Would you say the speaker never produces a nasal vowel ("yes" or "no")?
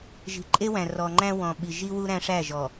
no